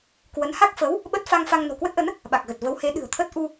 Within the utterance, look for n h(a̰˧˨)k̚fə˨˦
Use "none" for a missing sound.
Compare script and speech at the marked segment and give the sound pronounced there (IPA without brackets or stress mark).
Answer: a˦˥